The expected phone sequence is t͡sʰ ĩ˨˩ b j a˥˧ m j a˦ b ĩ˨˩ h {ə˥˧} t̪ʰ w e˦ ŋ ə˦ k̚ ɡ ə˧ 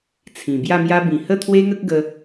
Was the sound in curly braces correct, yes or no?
yes